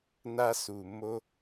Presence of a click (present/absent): absent